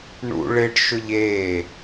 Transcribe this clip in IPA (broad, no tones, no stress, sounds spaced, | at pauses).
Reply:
ɳ ṵ ɭ ɪ ɖ ʃ ʊ ʎ eː